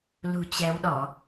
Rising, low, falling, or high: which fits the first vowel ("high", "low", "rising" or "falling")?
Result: low